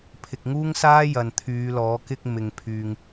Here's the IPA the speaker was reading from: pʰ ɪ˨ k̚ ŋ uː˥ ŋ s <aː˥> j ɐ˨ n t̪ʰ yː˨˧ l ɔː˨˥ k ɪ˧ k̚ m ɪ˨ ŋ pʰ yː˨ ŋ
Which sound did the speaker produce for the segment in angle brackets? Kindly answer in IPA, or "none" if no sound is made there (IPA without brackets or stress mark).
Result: aː˥